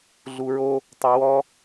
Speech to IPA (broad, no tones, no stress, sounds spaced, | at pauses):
ɮ u ɹ o | tˤ ʊ w ɔ